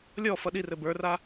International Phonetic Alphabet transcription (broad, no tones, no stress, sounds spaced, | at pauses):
lʲ ɔ f ʌ ɗ i r ɘ b ə˞ r a